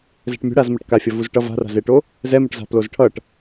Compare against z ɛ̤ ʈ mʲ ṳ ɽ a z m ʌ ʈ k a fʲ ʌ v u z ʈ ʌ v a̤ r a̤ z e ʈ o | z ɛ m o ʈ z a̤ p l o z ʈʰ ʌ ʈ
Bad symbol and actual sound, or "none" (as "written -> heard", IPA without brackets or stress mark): none